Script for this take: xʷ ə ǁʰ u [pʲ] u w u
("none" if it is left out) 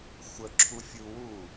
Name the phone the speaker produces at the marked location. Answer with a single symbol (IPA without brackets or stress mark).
fʲ